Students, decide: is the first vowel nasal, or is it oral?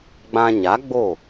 nasal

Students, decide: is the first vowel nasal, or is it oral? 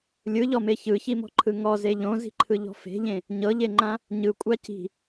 oral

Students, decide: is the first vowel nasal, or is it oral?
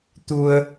oral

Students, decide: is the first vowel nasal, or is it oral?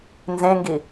nasal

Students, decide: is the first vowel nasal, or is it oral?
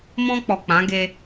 nasal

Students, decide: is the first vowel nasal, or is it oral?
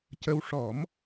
oral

